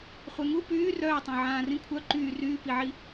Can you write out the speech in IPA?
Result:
χʷɛŋu pyː rœːtˤõ ʕãːrĩkʷʰœ ǃyː ryːpiʕi

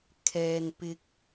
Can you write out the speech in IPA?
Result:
kʰɛː˧npɪ˧k̚

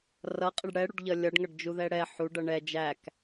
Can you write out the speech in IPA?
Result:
rʌqʼɪɖ ɽɛɽuɖʎʌ lʲʌɖŋʌɖd͡ʒuðɛ ɽɛ ħuɖʌ ɳɛ d͡ʒæk

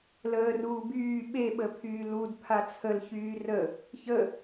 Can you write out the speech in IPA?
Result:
ləːruː byː ɓeɓəpʰyː ludpʰa t͡sʰəlçyː rə | çə

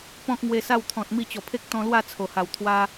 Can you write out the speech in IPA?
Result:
pɔ̃˦k̚ ŋwe˧sa˥˧wt̪ʰɔ̃˨t̚ mi˥˧t͡ɕɔ˨˩ pʰe˦k̚ t̪ɔ̃˧lwa˥˧ t͡sʰo˨˩ha˨˩w t̪ʰwa˦

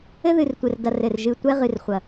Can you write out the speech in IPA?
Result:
ɘ˦ðɨ˨rtʷɘ˨rdɐ˨r ɘ˨r ʒɨ˨ tʷɛ˦ʁɨ˨rχʷɐ˨

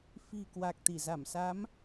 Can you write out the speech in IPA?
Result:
fi̤˨˩ kwa˨˩k̚t̪i˧˩ za˧˩msa˨˦m

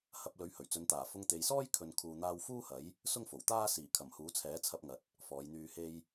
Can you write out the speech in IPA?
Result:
hɐ˧p̚ lɵ˨˥ɥhɵ˨˩ɥt͡sɵ˨˧nt̪aː˨˩ fʊ˧ŋt̪e˨jsɔː˥j kʰɵ˨nkʰuː˨n̪aː˧w fuː˥hɐ˨˥j | sʊ˥ŋfo˨˩wt̪aː˥ siː˨˩kʰɐ˨˩mhuː˨˥ t͡sʰɛː˨˥t͡sʰɐ˧p̚ŋɐ˨t̚ | fɔː˨˧jn̪yː˧he˥j

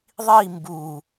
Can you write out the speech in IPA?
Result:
ðˤi mbu

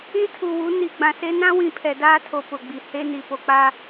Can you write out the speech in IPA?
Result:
ĩ˦tʰu˨wu˨˦ ni˨ ɡ͡bã˨se˦ nã˦wĩ˨ pʰɛ˨daː˦tʰo˨ pʊ˨ɡ͡bi˨ he˦ni˨ po˨k͡pa˦

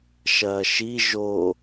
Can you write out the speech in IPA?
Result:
ʃɐːʃi ʒo

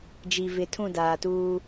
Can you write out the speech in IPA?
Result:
d͡ʒi˨vɪ˨ tʰũ˦˨daː˨tuː˦

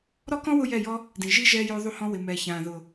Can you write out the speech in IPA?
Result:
ɾɔ˦kɔ̃˦ wʊ˦jɛ˦˨jɔ˦ | dĩ˨ʒi˦ ʒɛː˧joː˧ðˤu˧hɔ̃˧ wɪ˨mɛː˨çãː˨ ðʊ˨

